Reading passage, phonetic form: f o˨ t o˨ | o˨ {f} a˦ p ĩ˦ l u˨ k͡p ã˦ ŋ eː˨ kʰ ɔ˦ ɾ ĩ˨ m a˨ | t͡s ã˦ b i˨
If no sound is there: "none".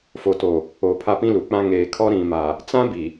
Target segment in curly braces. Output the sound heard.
pʰ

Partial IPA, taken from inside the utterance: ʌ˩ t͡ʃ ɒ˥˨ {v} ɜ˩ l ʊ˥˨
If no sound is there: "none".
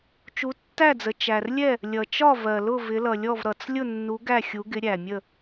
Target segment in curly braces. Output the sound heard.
v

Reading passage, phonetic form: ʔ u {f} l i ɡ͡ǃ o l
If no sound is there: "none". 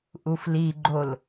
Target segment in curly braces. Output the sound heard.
f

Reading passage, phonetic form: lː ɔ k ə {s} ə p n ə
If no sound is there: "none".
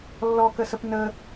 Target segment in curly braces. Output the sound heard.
s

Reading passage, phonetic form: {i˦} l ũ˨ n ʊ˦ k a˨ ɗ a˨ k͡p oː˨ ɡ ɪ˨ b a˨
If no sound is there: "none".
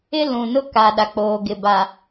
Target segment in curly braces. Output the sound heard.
ɪ˦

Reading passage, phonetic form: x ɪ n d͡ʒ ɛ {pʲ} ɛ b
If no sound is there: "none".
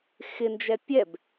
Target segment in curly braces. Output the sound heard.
pʲ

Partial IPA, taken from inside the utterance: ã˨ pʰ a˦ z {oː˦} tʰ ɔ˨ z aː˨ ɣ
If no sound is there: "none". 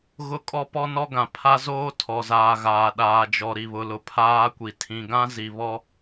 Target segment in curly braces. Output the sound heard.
oː˦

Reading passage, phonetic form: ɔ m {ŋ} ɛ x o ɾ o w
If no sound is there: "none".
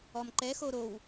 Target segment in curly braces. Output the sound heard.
ǃ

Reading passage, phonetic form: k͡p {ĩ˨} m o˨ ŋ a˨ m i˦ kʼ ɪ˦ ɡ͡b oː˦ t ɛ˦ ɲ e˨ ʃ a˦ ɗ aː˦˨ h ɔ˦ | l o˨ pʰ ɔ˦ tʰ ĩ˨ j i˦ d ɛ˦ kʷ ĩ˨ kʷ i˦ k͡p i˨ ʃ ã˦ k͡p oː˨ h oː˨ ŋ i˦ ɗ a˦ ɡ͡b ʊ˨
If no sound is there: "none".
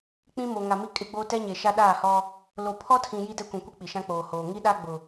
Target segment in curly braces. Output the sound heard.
ĩ˦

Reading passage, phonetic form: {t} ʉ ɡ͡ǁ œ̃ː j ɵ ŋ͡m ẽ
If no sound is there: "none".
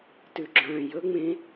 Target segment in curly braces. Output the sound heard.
t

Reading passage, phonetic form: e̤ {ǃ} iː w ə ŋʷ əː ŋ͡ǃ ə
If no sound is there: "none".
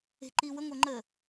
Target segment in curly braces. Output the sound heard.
ǃ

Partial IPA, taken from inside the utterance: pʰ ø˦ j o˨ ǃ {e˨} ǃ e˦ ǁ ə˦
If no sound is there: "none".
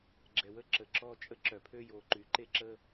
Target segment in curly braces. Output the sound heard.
y˨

